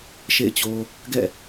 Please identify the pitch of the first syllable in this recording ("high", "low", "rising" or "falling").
falling